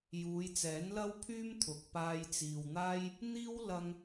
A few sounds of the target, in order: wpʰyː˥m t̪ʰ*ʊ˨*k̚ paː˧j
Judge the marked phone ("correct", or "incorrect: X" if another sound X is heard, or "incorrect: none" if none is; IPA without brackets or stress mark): correct